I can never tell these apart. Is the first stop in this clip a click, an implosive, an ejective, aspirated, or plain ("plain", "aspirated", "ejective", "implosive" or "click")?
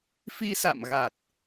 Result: plain